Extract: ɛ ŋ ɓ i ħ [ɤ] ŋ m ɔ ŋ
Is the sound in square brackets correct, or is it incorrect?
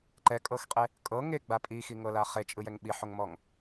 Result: incorrect